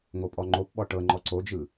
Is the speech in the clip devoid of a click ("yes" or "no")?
no